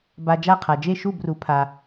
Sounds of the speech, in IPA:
ba˧d͡ʒa˥˩qʰa˩ d͡ʒe˥˩ʃu˥˩bru˩˥pʰa˩

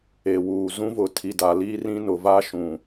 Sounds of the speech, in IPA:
e˨wuː˨ zũ˦vʊ˨tʰi˨ da˨liː˦rĩ˦ nʊ˨ va˦ʃũ˨

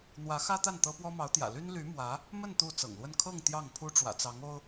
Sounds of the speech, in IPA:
n̪wä˧˥xä˥t̪a˥˩n t̪ɤ˥ pwɔ˥mɑ˧˥ʊ̯t̪jä̰˨˩ ly˥nly˧˥ mwä˧˥ | mə˥˧n t̪u˥˩ t͡sɤ̰˨˩ŋlwə˥˧n kʰɤ˥˧ŋ t̪jɑ˥˩ŋpʰu˥ ʈ͡ʂwä̰˨˩t͡sɑ˧˥ŋo˥ʊ̯

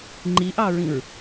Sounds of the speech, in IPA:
ŋ͡ǃiʔɑɹĩɹ

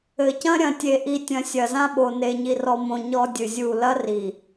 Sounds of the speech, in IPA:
ɘ˨cɐ̃˦ ɾʲɐ̃˨tʲe˨ʔi˨tʲɐ̃˨ sʲɐ˨zã˦ɓo˨ ne˨ɲi˨rɔ˨mõ˨ ɲɔ˦dʲɨ˨zʲu˦˨ lɐ˦ri˨

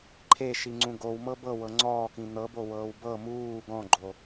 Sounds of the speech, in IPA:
ǃʰeʃiŋ͡ǀũ ɡowmɤ bɤwɤ ŋ͡ǀɔːkĩ n̪ɤbowɤːw bɤ muː ɡɔ̃ɡ͡ǃo

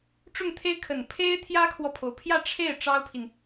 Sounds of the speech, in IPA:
ʈ͡ʂʊ˥˩ŋt̪ʰe˥ɪ̯kʰə˨˩n pʰe˥ɪ̯ t̪ʰjä˥kʰwɔ˨pʰo˩ʊ̯pʰjä˥˧ ʈ͡ʂʰe˥˩ɪ̯ ʈ͡ʂɑ˥ʊ̯pʰi˨n

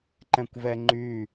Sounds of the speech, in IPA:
ǃɛ̃kʷvɛŋ͡ǃy

